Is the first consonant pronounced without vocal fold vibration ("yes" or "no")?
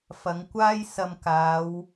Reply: yes